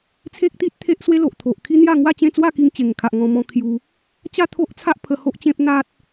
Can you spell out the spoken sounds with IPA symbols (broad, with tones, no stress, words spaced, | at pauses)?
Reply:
t͡sʰe˦k̚t̪i˦t̚ t̪ʰe˦ʔswe˦lo˨ʔt̪ʰo˨ʔ kʰi˦n̪ja˥˧ŋwa˥˧t͡ɕẽ˥˧ t͡swa˥˧ki˧ŋ t͡ɕe˨˩ŋkʰa˨ʔ ŋɔ̃˧mɔ̃˧ kʰju˧ | t͡ɕa˥˧t̪ʰo˦ʔt͡sʰa˦ʔ pʰə˧ho˦ʔt͡ɕẽ˦p̚ n̪a˦t̚